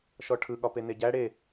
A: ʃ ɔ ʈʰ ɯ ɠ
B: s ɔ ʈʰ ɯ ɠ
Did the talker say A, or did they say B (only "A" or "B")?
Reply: A